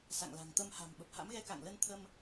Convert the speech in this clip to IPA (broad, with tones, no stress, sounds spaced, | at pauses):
s a̰˧˨ ŋ l a̤˨˩ ŋ t̪ ə˧ m h a̤˨˩ m ɓ ə˨˩ p̚ h a̰˧˥ m ɣ ɛ˧ k a̰˧˨ ŋ l ə˧ n t̪ʰ ə˧ m